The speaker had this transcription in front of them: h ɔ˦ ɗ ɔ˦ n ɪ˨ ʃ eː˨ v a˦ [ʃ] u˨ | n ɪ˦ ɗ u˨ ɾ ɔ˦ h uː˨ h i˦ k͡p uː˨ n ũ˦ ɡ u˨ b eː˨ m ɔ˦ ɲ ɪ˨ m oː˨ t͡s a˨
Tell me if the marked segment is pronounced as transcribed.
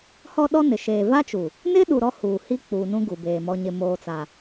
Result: no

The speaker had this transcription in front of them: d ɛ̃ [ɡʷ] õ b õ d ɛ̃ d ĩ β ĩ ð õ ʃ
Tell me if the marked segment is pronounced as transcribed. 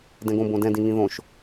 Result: no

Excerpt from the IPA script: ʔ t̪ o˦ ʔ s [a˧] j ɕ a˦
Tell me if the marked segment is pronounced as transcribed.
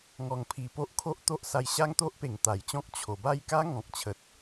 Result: yes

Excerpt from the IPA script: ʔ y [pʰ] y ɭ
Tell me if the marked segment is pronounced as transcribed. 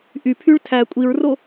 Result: yes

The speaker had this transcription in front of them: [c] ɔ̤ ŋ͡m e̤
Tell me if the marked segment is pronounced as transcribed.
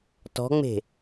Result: no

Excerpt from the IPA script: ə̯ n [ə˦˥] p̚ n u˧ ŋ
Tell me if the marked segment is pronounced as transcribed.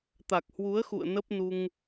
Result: yes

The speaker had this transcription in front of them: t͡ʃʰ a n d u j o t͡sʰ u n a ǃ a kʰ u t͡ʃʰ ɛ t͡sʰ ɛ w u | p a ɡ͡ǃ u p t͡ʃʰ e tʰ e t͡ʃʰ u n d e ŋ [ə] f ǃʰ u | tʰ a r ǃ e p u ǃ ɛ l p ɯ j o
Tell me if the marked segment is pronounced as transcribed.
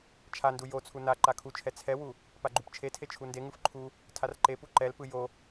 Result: no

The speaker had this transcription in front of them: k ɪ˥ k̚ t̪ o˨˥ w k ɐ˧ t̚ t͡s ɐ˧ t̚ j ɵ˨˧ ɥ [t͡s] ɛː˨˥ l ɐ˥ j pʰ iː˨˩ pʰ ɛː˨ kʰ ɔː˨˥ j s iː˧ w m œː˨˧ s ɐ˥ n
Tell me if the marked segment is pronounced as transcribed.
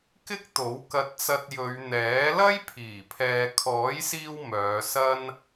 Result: no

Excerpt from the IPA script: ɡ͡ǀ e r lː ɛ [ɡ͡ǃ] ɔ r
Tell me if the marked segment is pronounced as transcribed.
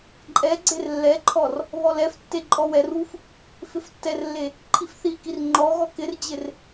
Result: no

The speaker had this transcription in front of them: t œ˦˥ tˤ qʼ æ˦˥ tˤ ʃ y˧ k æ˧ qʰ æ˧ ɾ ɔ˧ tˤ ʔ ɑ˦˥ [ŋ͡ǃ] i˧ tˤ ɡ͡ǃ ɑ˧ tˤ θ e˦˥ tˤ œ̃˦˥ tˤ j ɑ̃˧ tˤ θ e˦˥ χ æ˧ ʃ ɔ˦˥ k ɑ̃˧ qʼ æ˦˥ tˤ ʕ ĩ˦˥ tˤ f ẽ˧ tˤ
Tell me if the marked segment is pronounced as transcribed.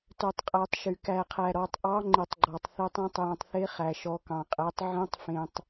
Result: yes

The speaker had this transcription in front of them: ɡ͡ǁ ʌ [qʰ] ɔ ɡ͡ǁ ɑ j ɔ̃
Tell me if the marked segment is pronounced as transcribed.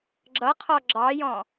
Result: yes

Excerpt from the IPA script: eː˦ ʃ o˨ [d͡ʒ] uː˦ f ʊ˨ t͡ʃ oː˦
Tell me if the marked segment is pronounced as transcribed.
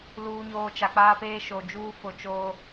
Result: yes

